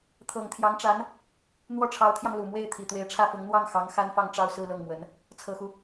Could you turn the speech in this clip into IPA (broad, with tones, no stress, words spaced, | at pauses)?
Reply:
t̪ʰɤ˨˩ŋt̪ʰjɑ˧˥ŋʈ͡ʂa˧˥n | n̪wɔ˥˩ʈ͡ʂʰɑ˧˥ʊ̯t̪ʰjɑ˧ŋ lu˨˩mwe˥˩ɪ̯ t̪ʰi˨˩t̪we˧˥ɪ̯ʈ͡ʂʰä˥˩fʊ˧˥ŋ n̪wɑ˥˩ŋxɑ˧˥ŋ xa˥nfɑ˥˧ŋʈ͡ʂɑ˥˧ʊ̯ sɹ̩˥˧lɤ˥˩ŋmwə˧˥n | t͡sʰɤ˨˩xu˦